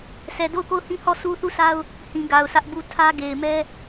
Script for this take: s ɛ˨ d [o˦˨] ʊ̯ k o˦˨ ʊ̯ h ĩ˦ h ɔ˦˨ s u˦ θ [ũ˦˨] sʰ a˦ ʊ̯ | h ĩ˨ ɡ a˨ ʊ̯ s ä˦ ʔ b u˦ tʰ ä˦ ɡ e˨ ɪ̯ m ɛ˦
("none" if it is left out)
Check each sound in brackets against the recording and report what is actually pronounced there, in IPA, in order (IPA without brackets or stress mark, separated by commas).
o˦˨, u˦˨